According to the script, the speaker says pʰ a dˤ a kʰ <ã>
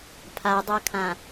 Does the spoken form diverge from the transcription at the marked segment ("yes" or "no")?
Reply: no